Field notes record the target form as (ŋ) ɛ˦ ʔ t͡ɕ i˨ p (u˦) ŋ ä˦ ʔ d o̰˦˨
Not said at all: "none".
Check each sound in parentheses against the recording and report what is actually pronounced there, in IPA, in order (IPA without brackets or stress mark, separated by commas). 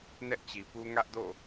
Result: n, u˦